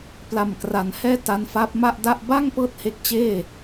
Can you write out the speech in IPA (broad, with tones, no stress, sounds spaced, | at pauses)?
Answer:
p l a˨˩ m k r a˩˦ n h ɛː˥˩ t a˧ n f a˦˥ p̚ m a˥˩ ʔ d a˥˩ ʔ b a˥˩ ŋ p ɤː˦˥ t̚ h e˦˥ k̚ t͡ɕ eː˥˩